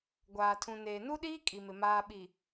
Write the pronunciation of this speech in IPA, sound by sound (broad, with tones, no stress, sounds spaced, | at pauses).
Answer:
ɡʷ aː˨ tʰ ũ˨ n eː˨ n u˦ ɗ iː˦ kʼ i˨ m ɪ˨ m aː˨ ɓ i˨